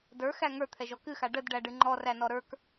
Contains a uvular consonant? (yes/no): no